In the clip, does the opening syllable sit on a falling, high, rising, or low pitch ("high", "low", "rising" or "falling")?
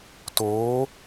rising